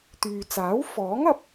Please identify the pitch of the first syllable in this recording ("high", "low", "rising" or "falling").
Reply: low